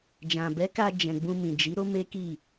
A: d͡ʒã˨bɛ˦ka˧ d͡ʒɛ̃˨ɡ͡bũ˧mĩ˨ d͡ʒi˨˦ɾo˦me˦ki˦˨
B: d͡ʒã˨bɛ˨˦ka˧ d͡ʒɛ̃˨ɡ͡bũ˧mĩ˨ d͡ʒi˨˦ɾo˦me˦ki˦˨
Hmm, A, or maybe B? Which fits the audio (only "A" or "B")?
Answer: B